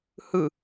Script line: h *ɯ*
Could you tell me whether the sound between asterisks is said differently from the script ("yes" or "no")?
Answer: no